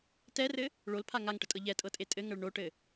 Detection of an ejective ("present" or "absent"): present